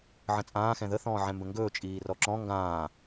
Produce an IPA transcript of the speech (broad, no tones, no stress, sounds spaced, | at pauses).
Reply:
ʕ ə̃ t͡sʼ ãː x ɛ̃ ð ə θ ɔ̃ː ʕ ɛ̃ m b ə̃ ŋ ɡ ɵː t͡ʃʼ iː r ɔ ǁ ɔ̃ ŋ ɡ ãː